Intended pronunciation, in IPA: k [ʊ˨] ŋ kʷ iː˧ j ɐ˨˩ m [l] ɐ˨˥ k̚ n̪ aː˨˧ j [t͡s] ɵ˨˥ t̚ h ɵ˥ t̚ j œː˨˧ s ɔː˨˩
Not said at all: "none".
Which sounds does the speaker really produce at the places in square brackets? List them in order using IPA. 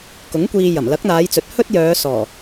ʊ˨˥, l, t͡s

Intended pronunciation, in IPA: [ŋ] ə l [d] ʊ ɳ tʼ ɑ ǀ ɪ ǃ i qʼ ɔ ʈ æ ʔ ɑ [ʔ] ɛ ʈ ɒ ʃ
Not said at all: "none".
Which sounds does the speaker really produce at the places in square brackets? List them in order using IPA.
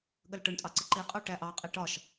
ɠ, ʈ, qʼ

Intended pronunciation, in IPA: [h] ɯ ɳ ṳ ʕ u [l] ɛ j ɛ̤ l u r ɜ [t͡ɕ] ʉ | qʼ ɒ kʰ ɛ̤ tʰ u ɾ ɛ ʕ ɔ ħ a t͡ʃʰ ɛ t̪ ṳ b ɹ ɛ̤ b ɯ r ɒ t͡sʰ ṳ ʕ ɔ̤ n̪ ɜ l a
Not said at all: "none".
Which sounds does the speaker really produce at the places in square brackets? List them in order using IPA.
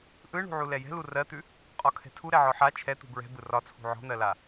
ʔ, l, t̪

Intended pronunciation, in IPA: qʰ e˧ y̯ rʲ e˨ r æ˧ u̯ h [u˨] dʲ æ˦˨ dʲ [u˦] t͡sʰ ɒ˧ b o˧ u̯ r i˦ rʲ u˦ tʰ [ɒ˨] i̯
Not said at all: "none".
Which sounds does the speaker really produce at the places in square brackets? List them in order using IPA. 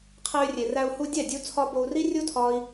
u˧, u˧, ɒ˦

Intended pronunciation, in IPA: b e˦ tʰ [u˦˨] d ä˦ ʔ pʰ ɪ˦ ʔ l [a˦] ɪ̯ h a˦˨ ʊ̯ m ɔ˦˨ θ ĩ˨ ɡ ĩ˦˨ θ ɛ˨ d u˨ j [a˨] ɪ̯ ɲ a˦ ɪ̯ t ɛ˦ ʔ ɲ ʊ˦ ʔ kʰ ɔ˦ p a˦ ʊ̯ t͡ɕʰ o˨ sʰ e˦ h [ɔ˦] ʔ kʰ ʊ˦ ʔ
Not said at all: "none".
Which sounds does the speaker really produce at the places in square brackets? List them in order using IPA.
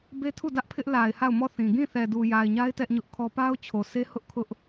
u˦˨, a˨, a˨, ʊ˦

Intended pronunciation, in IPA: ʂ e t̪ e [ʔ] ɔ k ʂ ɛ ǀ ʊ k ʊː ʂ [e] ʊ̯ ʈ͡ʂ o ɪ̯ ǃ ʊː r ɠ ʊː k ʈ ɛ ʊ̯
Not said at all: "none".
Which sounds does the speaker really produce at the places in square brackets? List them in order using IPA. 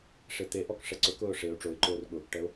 ʔ, e

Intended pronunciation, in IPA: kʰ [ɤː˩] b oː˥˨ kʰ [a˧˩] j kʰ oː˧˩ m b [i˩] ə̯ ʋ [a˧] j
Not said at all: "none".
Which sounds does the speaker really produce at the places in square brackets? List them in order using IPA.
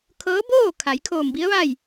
ɤː˧˥, a˩˧, i˧˥, a˥˨

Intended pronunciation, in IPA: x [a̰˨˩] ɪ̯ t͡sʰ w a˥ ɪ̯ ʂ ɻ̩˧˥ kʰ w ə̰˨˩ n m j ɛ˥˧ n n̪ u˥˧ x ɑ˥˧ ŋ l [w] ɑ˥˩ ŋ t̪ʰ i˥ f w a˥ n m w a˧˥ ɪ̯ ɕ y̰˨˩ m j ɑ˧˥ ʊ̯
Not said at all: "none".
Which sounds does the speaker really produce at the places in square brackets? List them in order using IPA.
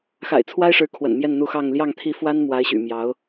a̰˨˩, j

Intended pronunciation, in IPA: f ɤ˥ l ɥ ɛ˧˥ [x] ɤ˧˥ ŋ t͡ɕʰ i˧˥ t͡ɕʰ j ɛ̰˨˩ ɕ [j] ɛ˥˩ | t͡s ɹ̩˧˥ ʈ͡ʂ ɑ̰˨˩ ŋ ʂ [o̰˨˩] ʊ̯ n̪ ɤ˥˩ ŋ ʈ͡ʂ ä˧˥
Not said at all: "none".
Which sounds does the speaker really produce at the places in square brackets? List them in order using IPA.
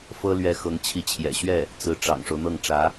x, ɥ, o˦

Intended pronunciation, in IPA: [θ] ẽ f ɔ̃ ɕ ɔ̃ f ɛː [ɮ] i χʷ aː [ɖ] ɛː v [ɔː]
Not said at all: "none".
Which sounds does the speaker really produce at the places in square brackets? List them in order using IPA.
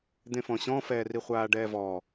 d̪, r, ɖ, ɔː

